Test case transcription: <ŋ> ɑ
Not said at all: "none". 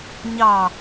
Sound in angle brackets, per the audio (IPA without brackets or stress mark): ɲ